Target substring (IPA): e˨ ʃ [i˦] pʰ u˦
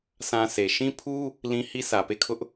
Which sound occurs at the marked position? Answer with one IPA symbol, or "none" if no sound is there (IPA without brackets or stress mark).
ĩ˦